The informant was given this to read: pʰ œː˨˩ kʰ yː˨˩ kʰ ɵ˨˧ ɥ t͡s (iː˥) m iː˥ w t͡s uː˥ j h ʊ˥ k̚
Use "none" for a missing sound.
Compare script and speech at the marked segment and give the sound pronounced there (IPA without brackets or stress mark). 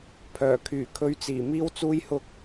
iː˨˩